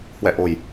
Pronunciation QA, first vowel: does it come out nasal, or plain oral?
oral